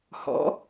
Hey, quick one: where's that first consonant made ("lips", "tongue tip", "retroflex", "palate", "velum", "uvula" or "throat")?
throat